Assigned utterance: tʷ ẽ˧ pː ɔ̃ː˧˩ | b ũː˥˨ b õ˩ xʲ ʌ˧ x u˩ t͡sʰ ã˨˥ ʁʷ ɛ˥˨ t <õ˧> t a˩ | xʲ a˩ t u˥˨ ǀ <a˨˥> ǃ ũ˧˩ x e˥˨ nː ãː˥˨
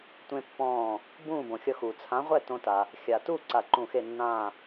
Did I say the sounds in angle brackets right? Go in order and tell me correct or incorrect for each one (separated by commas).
correct, incorrect